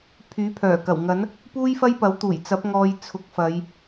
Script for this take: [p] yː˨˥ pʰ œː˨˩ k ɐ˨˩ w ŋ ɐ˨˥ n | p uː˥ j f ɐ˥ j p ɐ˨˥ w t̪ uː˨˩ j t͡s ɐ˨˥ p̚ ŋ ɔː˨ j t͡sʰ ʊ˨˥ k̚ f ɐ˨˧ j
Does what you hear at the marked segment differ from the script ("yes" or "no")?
yes